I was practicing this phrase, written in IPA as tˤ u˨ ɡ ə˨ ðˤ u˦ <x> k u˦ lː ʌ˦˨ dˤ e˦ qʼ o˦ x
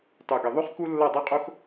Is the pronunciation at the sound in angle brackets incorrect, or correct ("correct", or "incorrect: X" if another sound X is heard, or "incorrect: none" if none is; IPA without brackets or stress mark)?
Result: incorrect: χ